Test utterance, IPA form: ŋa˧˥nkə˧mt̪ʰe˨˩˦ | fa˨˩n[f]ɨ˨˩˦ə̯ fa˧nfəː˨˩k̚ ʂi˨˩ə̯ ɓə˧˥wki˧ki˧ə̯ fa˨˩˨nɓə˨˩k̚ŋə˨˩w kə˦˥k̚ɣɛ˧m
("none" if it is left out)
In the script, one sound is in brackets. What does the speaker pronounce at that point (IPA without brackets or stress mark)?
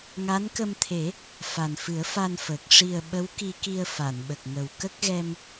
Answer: f